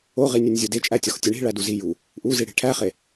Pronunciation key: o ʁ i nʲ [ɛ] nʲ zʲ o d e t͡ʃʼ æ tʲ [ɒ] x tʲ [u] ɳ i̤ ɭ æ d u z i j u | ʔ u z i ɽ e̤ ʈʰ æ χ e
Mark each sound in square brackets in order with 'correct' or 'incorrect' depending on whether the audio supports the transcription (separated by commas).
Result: incorrect, correct, incorrect